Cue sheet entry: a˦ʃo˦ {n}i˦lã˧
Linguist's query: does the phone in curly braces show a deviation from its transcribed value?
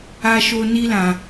no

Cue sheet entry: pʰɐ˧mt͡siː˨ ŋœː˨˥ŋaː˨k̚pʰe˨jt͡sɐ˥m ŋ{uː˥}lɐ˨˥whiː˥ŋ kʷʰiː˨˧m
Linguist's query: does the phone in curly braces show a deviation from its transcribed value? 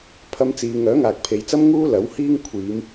no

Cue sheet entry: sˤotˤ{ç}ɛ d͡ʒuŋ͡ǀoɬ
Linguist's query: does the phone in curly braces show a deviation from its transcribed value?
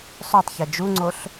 no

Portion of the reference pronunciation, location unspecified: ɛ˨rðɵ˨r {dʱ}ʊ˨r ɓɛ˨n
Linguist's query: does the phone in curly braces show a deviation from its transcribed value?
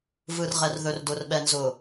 yes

